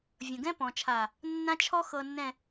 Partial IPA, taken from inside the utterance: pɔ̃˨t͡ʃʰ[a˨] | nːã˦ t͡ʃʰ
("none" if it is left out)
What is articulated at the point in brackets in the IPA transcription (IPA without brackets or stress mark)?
a˨